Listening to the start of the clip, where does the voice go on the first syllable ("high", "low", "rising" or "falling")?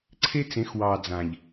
high